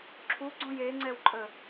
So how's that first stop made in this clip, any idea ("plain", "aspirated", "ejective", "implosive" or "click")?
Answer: click